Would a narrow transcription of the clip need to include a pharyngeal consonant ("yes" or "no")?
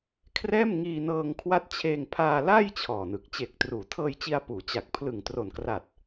no